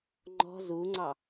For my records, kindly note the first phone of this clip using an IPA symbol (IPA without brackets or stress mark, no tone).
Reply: ŋ͡ǃ